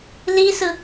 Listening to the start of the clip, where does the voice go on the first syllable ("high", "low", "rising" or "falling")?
high